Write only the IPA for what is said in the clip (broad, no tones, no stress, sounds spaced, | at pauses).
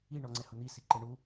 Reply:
i ɳ ɔ ŋ͡ǀ ɛ h ʊ n̪ i s i ǃ e ɳ u